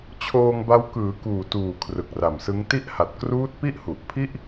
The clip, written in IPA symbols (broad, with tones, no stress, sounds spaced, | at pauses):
t͡ɕʰ oː˧ ŋ b a˦˥ w k ɯː˩˦ k uː˨˩ t uː˨˩ kʰ r ɯ˨˩ k̚ r a˨˩ m s ɯ˦˥ ŋ t i˥˩ ʔ h a˨˩ t̚ k r uː˦˥ t̚ p i˥˩ ʔ h u˨˩ ʔ pʰ i˥˩ ʔ